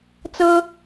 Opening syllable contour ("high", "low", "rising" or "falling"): high